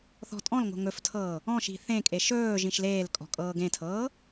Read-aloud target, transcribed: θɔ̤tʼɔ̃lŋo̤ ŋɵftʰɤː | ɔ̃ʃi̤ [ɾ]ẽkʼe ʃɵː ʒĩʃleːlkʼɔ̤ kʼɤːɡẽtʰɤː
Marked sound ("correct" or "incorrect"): incorrect